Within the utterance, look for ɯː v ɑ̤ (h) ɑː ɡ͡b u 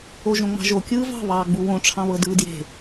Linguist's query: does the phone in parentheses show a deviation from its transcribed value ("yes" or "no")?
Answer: yes